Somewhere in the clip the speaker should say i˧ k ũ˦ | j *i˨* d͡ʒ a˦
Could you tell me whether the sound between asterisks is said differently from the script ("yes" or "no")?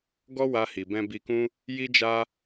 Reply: yes